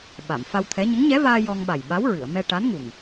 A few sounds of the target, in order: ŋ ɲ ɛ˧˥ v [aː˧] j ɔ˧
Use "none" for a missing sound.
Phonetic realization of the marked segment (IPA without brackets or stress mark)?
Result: aː˧